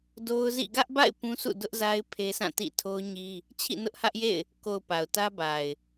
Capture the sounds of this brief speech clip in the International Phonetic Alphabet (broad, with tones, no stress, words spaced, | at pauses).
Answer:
do˦ʊ̯zḭ˦˨ ɡä˦ʔba̰˦˨ɪ̯ pũ˦sʰṵ˦˨ dʊ˦ʔza˦ɪ̯ pʰe˦sã˦˨ tḭ˦˨ tʰo˦ʊ̯ɲi˦ | t͡ɕʰḭ˦˨nʊ˦ʔhä˦ʔjḛ˦˨ɪ̯ | ko˨ʊ̯ pa˨ʊ̯tä˦ba˨ɪ̯